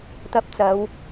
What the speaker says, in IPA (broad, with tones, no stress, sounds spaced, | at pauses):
t̪ ɐ˧ p̚ t͡s ɐ˨˧ w